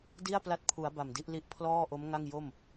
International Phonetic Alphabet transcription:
di˥˩a̯pla˦˥t̚pʰu˩˦a̯ ba˨˩mdi˦˥ʔli˥˩ʔ pʰlɔː˥˩ʔo˦˥mŋa˥˩ŋ jo˥˩m

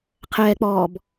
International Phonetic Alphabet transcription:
qʰɛːk͡pɔːb

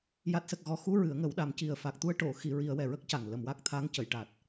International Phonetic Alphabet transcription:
ja˨˩t̚sə˨˩k̚ ɣɔ˨˩xu˧ ɹɨ˨˩˦ə̯ŋə˨˩˦wɗa˨˩˦m ci˨˩ə̯fa˨˩k̚t̪u˧ə̯ʈo˨˩˨ xi˨˩˨ ɹi˨˩˦ə̯wɛ˨˩ɹə˦˥k̚ca˨˩ŋ lə˨˩˨mwa˦˥k̚t̪ʰa˧˥ŋ cə˨˩˨jʈa˨˩t̚

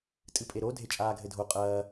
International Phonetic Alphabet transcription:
tʼɨpʼeɾo dʱet͡ʃʼaːɡʱɘdʱo qʼɐː

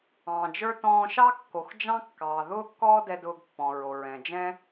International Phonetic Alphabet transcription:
ɑ̃ː˩d͡ʒə˞˥ tɔ̃ː˧ʃɑ˥kːo˩x d͡ʒɑ̃˥kːɑː˩ ðʊː˥kːɔː˥dɛ˧ dʊː˧ɡpːɔ̃˩ ɹo˩ɹɛ̃˩d͡ʒɛ̃˥

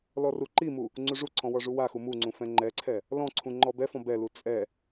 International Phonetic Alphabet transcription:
lɔruǃimu | ŋ͡ǀuʐuǀʰɔ̃ wɔʐuwaxu muŋ͡ǀũ fɛ̃ŋ͡ǃɛǀʰɛ | lɔ̃ǀʰũ ŋ͡ǃɔbɛfɔ̃ bɛlu t͡sʼɛ

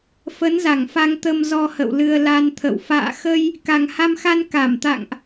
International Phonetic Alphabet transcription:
fə˨˦nza˧˩ŋfa˧ŋt̪ə˧m zɔ˧hə̰˧˨wlɨ˧ə̯ la˧nt̪ʰə̰˧˨w fa̰ː˧˨xə˧j | ka˨˩ŋha˧mxa˧n ka˧˩mt̪a̰˧˨ŋʔ

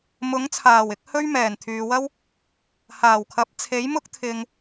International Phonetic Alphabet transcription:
mʊ˨˥ŋt͡sʰaː˨˩wɪ˨˥k̚ hɵ˥ɥ mɛː˨˩nt̪ʰyː˨wɐ˥w | haː˨˩wkʰɐ˨˥p̚ t͡sʰe˨˥jmʊ˥k̚ t̪ʰɪ˧ŋ

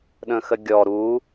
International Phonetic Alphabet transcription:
ɗə̃xəɡʲɔ ɾu

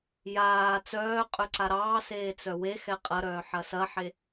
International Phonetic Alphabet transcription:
jaː t͡sœːqʼœ ǀaɾɑːseː t͡sœwexɛ qʼɐɾœː ħɐsɐħe

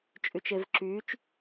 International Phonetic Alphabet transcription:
t͡ʃʼyt͡ʃevǁyt͡ʃ

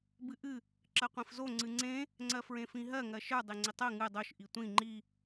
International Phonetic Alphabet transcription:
bɨʔɨ | ǁɜqʷĩfzo ŋ͡ǀɨŋ͡ǀẽ | ŋ͡ǀɜfɹẽfĩɦɜ ŋɜʃə˞ dˤeŋ͡ǀitˤɜ ŋɨ dˤoʃ ʔitʷĩ ŋ͡ǃi

